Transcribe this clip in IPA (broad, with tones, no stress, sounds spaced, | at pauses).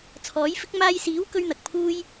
t͡sʰ ɔː˨˥ j f ɪ˥ k̚ m aː˧ j s iː˨˥ w k ɵ˥ ɥ n̪ ɐ˨ k̚ pʰ uː˥ j